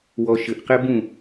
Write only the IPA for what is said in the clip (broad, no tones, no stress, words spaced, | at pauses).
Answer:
wɔʃɘʔqɛ bũ